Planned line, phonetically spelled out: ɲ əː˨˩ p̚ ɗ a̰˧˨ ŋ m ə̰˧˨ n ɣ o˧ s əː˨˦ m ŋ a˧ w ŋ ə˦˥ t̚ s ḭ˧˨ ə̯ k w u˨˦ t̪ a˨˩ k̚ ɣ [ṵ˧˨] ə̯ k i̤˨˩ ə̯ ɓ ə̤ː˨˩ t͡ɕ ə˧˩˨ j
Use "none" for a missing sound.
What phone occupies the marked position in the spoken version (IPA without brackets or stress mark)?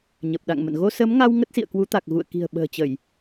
ṵ˧˨